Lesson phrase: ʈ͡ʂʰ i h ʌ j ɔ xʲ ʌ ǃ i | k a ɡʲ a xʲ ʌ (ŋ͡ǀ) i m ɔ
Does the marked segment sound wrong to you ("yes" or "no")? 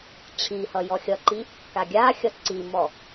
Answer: yes